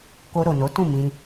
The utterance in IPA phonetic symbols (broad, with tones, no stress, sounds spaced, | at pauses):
k o˧ ɾ o˨ n o˨˦ t ũ˦˨ m ĩ˧